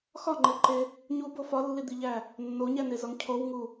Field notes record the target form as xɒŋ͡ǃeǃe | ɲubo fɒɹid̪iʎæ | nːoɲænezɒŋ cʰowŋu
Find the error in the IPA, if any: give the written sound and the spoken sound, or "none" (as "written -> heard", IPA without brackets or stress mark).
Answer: ɹ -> lː